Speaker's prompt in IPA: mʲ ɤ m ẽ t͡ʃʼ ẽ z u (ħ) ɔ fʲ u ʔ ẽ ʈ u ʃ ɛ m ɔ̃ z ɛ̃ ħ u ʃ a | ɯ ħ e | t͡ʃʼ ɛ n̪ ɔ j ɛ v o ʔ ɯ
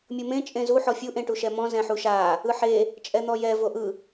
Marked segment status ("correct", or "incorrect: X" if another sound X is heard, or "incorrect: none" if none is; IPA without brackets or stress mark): correct